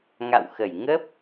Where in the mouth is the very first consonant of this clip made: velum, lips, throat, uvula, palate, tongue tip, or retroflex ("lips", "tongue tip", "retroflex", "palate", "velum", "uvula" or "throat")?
velum